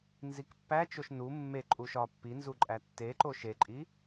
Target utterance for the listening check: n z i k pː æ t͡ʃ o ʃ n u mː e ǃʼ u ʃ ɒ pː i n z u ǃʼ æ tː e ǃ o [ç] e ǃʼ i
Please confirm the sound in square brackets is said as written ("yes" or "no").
no